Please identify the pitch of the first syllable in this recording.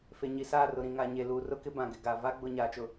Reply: low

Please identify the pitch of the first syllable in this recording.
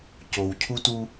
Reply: low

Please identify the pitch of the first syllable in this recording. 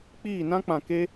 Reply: falling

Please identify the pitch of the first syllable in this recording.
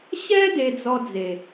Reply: high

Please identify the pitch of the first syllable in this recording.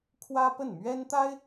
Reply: high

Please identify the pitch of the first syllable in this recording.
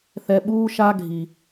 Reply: low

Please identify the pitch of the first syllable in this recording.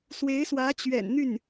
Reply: rising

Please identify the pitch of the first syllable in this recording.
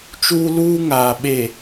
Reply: high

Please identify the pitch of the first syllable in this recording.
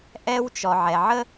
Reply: high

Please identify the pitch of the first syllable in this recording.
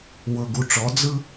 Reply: low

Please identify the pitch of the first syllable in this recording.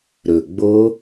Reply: low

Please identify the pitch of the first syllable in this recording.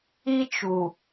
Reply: high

